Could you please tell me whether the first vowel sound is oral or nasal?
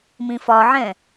nasal